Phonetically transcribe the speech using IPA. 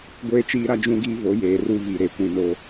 ɡʷ eː˦ t͡ʃ iː˦ ɾ a˦ d͡ʒ ũ˦ ɡ iː˦ v o˨˦ j eː˨ r u˦ v i˨ ɾ e˨ kʷ ĩ˨ n o˨

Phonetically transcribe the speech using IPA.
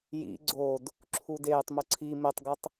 j ḭ ɡ͡ǀ o d | ǁʰ u d eː tˤ m ʊ ǀʰ i m e tˤ ɡ ʊ tˤ

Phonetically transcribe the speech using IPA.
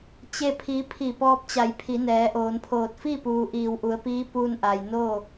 t͡ɕ e˥˨ pʰ i˧˥ pʰ i˧˩ p ɔː˧ p̚ t͡ɕ a˩˧ j pʰ i˩˧ n ɛː˩˧ ʔ oː˩˧ n pʰ oː˧˩ t̚ f i˥˨ p uː˩ ʔ iː˧˩ w ʔ u˩˧ ə̯ p iː˧˥ p uː˧ n ʔ a˩ j n oː˥˨

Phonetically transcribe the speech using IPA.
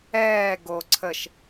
ɛː ɡ o ǀʰ ə ʃ

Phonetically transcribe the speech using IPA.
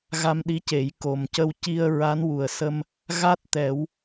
ɣ a˧ m ɗ i˧˥ c e˨˩˦ j k o˨˩ m c ə˧ w c i˧ ə̯ ɹ a˧˥ n w u˨˩ ə̯ s ə˧ m | ɣ a˦˥ t̚ t̪ ɛ˨˩˦ w

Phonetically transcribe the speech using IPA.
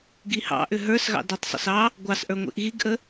ɡ i h ɑ̰ ʔ ʏ ɦ ə˞ s ɣ ɑ̰ d i tˤ sˤ ə̰ s ɑ | ɡʷ ɑ s ʔ ə˞ ŋʷ ḭ ʔ ɣ i ɡ ʔ ə

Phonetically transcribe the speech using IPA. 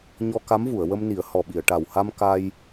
ɲ ɔ˧ k a˧˥ m v u˨˩˨ ə̯ w ə˧ m n i˨˩˦ ə̯ h ɔ˨˩ ɓ i˨˩˨ ə̯ ʈ a˨˩ w h a˧ m k a˧ j

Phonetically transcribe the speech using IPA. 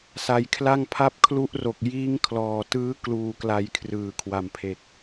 s a˨˩ j kʰ l a˥˩ ŋ pʰ a˦˥ p̚ kʰ l u˦˥ ʔ r o˨˩ k̚ j iː˦˥ ŋ kʰ l ɔː˨˩ t ɯː˦˥ k l uː˨˩ k l a˨˩ j kʰ r ɯː˩˦ kʰ w a˨˩ m pʰ e˨˩ k̚

